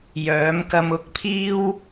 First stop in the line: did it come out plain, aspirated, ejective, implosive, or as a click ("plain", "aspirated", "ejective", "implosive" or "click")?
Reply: plain